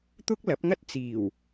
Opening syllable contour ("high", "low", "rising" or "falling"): high